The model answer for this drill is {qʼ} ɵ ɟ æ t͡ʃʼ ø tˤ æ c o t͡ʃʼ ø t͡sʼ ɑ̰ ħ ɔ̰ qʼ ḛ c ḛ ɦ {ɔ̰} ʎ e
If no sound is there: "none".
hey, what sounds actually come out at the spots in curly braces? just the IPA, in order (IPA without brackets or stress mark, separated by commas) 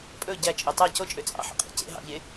pʼ, ɑ̰